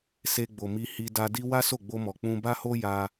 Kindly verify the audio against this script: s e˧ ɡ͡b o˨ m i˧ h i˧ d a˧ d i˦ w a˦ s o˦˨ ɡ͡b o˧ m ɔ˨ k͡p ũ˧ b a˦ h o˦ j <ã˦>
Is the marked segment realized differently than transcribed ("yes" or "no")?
yes